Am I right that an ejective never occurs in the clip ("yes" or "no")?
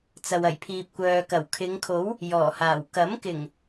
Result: yes